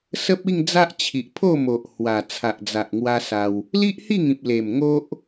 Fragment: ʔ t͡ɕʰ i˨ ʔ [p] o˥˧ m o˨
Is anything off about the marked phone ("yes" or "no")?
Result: yes